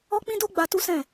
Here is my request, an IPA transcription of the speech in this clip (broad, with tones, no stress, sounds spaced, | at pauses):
ɔ˦ k͡p ĩ˦ d o˦ ɡ͡b a˧ t u˦ s ɛ̃˦˨